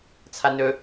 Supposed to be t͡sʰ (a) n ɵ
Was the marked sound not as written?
no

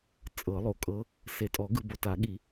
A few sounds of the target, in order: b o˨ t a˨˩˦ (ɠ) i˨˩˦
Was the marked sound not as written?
no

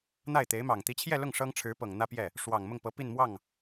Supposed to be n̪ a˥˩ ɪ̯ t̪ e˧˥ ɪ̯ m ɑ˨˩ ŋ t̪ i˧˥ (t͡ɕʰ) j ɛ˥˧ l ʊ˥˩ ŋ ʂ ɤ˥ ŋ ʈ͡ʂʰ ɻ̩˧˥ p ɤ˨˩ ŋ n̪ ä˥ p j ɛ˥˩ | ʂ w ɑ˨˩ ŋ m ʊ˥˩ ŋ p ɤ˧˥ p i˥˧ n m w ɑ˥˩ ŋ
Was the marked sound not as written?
no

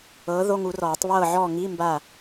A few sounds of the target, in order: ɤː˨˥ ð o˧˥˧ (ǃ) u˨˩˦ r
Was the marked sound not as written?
yes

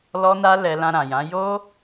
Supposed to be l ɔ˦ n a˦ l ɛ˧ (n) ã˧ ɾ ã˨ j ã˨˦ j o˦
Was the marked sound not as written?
yes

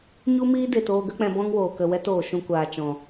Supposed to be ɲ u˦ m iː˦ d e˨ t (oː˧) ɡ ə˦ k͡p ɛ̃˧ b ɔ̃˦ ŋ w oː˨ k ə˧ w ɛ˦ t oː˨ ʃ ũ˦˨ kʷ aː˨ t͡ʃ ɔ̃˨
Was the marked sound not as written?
no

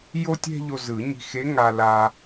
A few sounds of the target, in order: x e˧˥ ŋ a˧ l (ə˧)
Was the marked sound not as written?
yes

